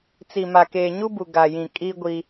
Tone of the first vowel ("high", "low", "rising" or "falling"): low